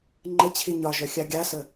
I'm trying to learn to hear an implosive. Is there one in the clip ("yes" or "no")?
no